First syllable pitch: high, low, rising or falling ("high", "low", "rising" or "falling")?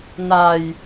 low